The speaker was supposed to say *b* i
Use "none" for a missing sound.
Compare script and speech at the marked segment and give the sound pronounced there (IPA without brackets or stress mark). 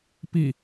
p